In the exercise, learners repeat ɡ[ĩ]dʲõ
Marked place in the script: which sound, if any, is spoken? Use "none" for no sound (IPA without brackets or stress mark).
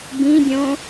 ĩ